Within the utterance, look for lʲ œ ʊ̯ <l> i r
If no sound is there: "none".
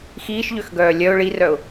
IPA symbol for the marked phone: ɭ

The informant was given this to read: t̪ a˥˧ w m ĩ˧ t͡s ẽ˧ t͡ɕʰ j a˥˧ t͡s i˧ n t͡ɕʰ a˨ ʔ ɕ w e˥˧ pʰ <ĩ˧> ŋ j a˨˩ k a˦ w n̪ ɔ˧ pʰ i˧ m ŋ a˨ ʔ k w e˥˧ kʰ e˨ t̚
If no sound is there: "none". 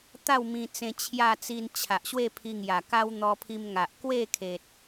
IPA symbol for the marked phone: i˧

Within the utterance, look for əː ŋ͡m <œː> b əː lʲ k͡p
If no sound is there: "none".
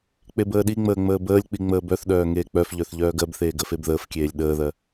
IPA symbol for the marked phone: əː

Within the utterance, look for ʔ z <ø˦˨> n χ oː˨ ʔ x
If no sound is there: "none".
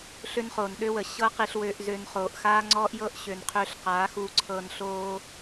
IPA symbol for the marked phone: ø˧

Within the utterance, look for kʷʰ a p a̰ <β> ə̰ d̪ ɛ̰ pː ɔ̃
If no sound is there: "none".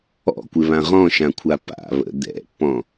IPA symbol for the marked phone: β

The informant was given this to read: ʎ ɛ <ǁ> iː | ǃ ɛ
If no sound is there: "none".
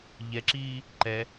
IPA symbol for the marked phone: ǁ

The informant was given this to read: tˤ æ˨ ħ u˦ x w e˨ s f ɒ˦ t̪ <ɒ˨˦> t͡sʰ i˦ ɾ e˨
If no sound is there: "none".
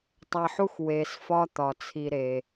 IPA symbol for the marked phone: ɒ˨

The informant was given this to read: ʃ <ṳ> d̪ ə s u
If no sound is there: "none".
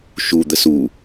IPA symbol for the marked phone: u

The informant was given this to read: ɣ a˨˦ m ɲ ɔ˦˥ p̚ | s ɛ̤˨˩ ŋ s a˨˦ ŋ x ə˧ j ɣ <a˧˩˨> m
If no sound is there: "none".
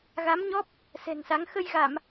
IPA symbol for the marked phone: a˧˩˨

